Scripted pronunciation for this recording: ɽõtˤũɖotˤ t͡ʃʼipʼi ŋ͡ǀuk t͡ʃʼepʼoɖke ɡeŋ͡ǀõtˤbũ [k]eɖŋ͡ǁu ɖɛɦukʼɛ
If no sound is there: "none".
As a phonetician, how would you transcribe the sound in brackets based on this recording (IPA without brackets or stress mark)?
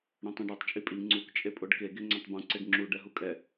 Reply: ǀ